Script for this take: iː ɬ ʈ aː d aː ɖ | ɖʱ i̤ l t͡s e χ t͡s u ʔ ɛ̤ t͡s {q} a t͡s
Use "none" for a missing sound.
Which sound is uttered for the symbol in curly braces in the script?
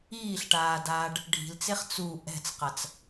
q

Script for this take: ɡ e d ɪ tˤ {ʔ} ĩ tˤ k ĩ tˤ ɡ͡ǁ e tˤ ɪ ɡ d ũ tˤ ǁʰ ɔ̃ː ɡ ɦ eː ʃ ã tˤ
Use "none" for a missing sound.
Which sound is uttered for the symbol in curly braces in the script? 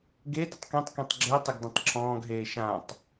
k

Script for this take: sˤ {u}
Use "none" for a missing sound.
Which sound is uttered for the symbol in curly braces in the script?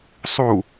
u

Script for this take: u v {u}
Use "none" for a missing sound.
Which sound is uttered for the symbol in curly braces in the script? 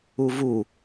u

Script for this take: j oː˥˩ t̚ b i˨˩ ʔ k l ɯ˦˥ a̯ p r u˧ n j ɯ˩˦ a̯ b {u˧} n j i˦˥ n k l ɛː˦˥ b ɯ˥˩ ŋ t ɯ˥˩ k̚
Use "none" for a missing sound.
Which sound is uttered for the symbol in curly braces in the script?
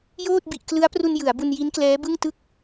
u˧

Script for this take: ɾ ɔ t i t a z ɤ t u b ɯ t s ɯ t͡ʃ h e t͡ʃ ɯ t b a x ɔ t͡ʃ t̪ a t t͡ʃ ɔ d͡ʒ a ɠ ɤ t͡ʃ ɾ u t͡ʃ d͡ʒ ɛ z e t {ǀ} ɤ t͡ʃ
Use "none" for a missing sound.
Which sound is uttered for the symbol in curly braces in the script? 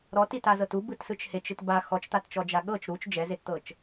t̪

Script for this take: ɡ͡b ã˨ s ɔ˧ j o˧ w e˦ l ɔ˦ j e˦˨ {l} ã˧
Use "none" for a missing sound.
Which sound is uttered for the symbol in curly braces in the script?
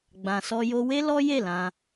l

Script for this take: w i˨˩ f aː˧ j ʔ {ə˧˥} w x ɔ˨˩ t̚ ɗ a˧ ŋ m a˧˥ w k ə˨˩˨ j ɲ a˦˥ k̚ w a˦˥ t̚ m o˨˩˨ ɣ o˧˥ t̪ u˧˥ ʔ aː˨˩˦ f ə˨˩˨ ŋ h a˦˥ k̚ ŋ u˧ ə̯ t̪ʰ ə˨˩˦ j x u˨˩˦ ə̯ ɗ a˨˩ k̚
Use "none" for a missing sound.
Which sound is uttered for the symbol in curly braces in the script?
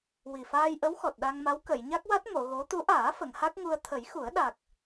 ə˧˥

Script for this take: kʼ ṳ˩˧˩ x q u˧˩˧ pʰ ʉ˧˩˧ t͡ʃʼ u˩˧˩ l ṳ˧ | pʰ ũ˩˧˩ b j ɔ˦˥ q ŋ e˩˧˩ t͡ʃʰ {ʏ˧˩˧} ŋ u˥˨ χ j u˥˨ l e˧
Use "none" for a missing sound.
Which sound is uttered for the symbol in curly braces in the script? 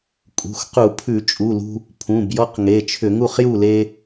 ʏ˧˩˧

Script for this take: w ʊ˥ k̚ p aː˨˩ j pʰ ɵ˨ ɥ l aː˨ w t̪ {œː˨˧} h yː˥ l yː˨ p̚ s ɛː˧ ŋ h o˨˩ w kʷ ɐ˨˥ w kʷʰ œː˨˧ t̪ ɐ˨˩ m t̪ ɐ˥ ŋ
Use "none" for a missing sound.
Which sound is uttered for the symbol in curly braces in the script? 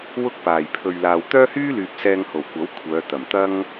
œː˥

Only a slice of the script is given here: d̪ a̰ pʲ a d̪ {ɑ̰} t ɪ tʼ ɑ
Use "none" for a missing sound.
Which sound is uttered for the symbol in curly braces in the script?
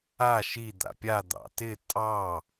ɑ̰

